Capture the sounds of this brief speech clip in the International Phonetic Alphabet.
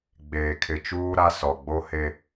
ɡ͡b eː˨ kʰ ɪ˨ t͡ʃ uː˦ ɾ a˦ s ɔ˨ ɡ͡b o˦ h e˦

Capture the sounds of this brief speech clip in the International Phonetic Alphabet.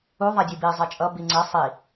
u ðˤ a dʲ ɯ b i zˤ ɛ t͡ʃʼ ʌ b i ŋ͡ǀ ɛ sˤ i

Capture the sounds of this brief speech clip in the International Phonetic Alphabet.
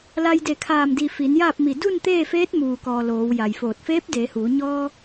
l a˧ j d e˧˩ kʰ aː˧˩ m d i˧˩ f i˩˧ n j aː˥˨ p̚ m i˧˩ d u˥˨ n t̪ eː˥˨ f eː˧˥ t̚ m uː˩ k ɔː˩ l oː˩˧ w j a˩ j f oː˧˩ t̚ f eː˧˥ p̚ d eː˩˧ h uː˩˧ ɲ ɔː˧

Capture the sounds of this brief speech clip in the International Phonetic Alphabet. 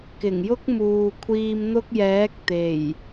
k ɪ˨˩ ŋ j ʊ˥ k̚ m uː˨ kʷʰ iː˧ m n̪ ʊ˥ k̚ j ɛː˨˥ k̚ t̪ e˨˩ j

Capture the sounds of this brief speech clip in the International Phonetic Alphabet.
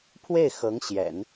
pʰ w e˥˩ ɪ̯ x ɤ˧˥ ŋ ɕ j ɛ̰˨˩˦ n

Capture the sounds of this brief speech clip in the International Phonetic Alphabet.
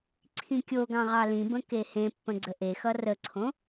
ǀʰ ĩ kʲ o ɡ ɑ̃ ʁ ɑ l ĩ b ə̃ k e h ẽ pː ə̃ ɡ͡ǀ ə ʔ e x ʌ r ə ǀʰ õ

